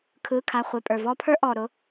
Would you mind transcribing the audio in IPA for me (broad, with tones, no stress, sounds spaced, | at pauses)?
kʰ ɯː˩˧˩ kʰ a˩˧˩ χʷ e˩˧˩ pʼ ə˞˩ v ɔː˥ pʰ ə˞˥ ʔ ɔː˩ ɾ ʊ˩˧˩